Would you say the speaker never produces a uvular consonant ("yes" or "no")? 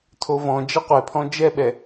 no